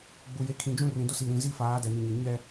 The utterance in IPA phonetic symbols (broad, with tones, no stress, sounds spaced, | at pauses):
ɡ͡b u˨ j e˨˦ kʰ ĩ˨ d͡ʒ ũ˦ r ĩ˨ d ʊ˦ s i˨ ɾ ĩ˨ z i˦ f aː˨˦ d ɛ˨ n i˨ ɲ e˨ ɲ ɛ˦